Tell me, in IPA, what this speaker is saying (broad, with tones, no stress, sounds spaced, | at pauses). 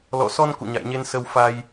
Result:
l ɔ̰˧˨ s ɔ˧ n k ṵ˧˨ ɲ a̰˧˨ j ɲ e˧ n s ə˧ w f a˧ j